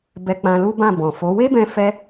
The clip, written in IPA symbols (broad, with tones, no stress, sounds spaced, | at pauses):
b ɛ˧ k͡p ã˧ l u˦ b ã˦˨ b ɔ̃˨ f o˨˦ w e˦ b ɛ̃˧ f ɛ˦